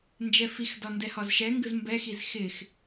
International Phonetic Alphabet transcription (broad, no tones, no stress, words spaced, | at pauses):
nd͡ʒɛfixdɒ ndɛhɒzʃɛŋɡɯz mbɛxiz xɪx